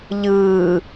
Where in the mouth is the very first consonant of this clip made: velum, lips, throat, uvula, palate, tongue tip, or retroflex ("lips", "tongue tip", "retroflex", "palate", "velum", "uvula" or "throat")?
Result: palate